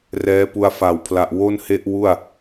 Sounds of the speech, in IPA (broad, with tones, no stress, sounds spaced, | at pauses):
r ɛː˦˥ p u˧ a̯ f a˨˩ w pʰ l a˨˩ ʔ w o˥˩ n h e˥˩ ʔ w u˥˩ a̯